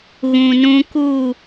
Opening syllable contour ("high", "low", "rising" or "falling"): low